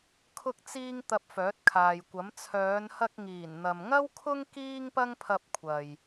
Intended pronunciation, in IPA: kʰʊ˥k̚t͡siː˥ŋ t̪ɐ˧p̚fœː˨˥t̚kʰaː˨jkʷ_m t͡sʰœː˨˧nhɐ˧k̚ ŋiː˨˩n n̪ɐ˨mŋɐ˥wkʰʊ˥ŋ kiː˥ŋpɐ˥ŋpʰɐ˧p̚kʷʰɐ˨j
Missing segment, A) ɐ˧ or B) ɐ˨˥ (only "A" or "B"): B